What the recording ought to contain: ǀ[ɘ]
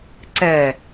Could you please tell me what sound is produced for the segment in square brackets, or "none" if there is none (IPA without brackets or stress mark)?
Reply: ɛ